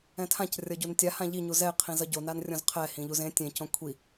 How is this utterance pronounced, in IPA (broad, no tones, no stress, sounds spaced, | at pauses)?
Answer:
ɛ̃ tʰ ã c rʲ ʌ ɟ u n tʲ a h ã ʎ i ɲ u z ɛ ɪ̯ qʰ ĩ z ʌ ɟ o n a n rʲ õ z qʰ ɛ h ĩ ʎ u z ẽ tʲ ẽ c õ kʷʰ i